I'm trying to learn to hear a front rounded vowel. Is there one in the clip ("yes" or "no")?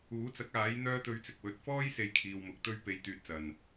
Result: yes